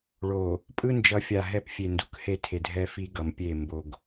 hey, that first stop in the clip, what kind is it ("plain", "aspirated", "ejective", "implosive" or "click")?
ejective